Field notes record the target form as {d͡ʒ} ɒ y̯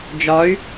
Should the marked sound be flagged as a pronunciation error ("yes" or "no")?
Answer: no